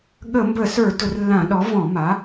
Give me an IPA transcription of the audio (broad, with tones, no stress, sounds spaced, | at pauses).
ɠ ə˧˩˧ m b ə˧˩˧ s ə˞˧˩˧ d ʊ˧˩˧ r lː ã˧˩˧ ɗ ɔ˩˥ v ɔ̃˧˩˧ m a˩˥